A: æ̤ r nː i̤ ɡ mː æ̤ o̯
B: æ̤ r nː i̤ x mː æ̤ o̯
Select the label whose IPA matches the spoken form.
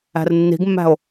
A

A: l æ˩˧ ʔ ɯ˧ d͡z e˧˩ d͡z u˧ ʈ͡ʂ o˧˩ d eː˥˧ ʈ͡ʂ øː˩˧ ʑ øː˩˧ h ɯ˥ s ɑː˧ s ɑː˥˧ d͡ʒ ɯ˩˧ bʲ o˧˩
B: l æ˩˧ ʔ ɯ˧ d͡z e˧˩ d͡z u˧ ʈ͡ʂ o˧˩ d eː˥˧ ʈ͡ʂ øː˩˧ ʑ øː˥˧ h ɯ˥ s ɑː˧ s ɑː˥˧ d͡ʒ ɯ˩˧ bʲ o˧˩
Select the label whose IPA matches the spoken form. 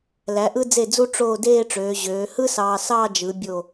A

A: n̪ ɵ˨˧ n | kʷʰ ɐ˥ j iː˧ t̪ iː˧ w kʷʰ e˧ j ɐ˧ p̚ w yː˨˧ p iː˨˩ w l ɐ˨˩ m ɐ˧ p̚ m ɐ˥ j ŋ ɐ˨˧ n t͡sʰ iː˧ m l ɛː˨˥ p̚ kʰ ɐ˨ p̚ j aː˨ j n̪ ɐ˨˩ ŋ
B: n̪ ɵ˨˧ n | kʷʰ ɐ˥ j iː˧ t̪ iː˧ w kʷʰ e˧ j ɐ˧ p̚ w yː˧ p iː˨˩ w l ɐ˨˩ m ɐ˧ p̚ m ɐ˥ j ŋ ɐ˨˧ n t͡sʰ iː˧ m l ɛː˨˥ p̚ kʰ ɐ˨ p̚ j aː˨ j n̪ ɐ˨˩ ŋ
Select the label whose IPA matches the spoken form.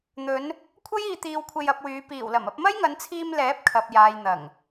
A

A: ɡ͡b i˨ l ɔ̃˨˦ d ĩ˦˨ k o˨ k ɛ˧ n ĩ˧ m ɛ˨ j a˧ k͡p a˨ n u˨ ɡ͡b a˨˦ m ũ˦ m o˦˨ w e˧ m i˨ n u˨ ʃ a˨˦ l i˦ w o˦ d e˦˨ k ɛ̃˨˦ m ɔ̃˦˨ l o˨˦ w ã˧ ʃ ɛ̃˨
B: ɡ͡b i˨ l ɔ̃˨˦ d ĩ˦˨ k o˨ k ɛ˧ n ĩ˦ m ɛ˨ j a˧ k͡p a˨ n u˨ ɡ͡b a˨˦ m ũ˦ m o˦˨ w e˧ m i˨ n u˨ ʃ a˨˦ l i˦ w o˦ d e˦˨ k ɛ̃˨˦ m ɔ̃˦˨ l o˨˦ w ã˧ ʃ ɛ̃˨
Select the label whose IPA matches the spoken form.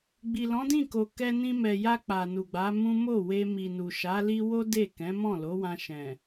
A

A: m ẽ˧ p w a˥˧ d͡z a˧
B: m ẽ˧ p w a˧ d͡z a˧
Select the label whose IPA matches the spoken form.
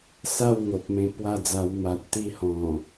A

